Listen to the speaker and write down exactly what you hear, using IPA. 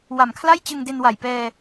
w a˨˩ m kʰ l a˥˩ j t͡ɕ ɯ˧ ŋ d e˧ n w a˨˩ j p ɛː˧

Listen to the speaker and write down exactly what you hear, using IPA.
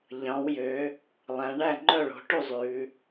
ʎ ɑ̃˩˧ w j ø˩˧ | lˠ æ̃˩˧ ɳ æ˥˩ ŋ͡ǃ œ˥˩ ɭ o̤˩˧ ʈ u˥˩ zˤ ʉ˩˧

